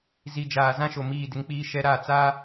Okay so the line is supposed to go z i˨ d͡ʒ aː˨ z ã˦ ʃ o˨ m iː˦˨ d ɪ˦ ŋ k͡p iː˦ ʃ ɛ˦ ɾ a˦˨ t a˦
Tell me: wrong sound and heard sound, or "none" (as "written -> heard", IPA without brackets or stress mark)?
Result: t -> t͡s